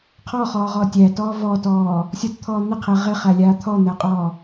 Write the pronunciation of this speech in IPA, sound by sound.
qʰ ɔ χ ɔː ʁ ɔ tʲ æ t ɔː v ɔ t ɔː | sʲ ɔ t t̪ʰ ɔː n̪ ɪ qʰ e ʁ ɪ χ æ lʲ aː t̪ʰ ɔ n̪ æ qʼ ɔː

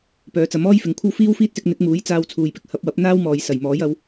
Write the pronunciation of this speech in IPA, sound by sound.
p œː˨˧ t͡s ɐ˨˥ m ɔː˥ j f ɪ˨ ŋ kʷʰ ɐ˥ w f iː˥ w f iː˥ t̚ s ɪ˧ k̚ n̪ ɪ˨˥ k̚ m uː˨˥ j t͡s aː˧ w t͡sʰ uː˨ j p ɪ˧ k̚ h ɐ˨˥ p̚ w ɐ˨˥ p̚ n̪ aː˥ w m ɔː˨ j s ɐ˨˩ j m ɔː˨˥ j ɐ˨˧ w

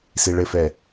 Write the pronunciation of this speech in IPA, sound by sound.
s i ɭ ɘ f ɛ

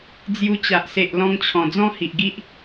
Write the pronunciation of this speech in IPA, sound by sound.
d͡z j u˧ t͡ɕ a˨ ʔ s e˨ ʔ l ɔ̃˧ ŋ t͡ɕʰ ɔ̃˨˩ d͡z ɔ̃˦ h i˨ ʔ ɡ i˦ ʔ

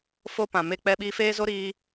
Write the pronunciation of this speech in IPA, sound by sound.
f o˦ p ã˨ m e˦ k͡p ɛ˧ ɓ iː˧ f eː˦ z o˦ ɾ iː˧

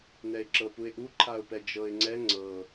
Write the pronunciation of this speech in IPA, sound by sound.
n ɛ ɪ̯ ǁ ɤ p u ɪ̯ ʔ u ǃʰ a ʊ̯ p ɛ d͡ʒ ɤ ɪ̯ ŋ͡ǀ ɛ ŋ͡ǀ ɤ

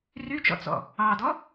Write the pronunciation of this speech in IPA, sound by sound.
r y t͡ʃ ɔ̰ t͡s ɔ̰ | ɑ d ɔ

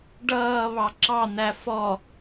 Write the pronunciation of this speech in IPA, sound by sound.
ɖ ʌː β ɑ ǁ ɑ n̪ æ f ɔ

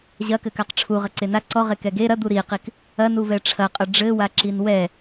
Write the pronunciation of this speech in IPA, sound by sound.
ʑ ɐ k ɘ k a q ʈ͡ʂʰ u ʁ ɐ ǀ e n a ǀ ɔ ʁ e k ɛ ɡ e ɾ ɐ d̪ u ɾ i q i k | ɐ n u v ɛ ʈ͡ʂʰ ɐ qʼ ɐ ɖ͡ʐ ɘ w a ǁ i n w ɛ

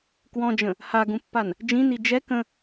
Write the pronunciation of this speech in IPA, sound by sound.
k w ɔ̃ d͡ʒ ə̃ | h a ɡ ũ pː a n | d͡ʒ ĩ n i d͡ʒ ɛ k ə̃

